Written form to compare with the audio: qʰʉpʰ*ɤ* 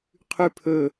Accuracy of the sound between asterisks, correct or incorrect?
incorrect